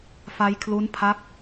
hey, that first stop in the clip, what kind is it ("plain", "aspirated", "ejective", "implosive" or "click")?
aspirated